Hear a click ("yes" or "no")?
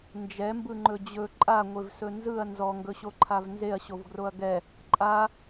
yes